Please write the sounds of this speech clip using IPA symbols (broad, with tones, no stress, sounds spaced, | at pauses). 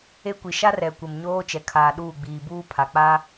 e˦ kʷ i˨ ʃ a˦ r ɛ˨ kʷ ɪ˨ m ɲ oː˦ t͡ʃ ɛ˨ kʰ aː˨ ɗ uː˦˨ ɡ͡b iː˨ b uː˦ pʰ a˨ k͡p a˦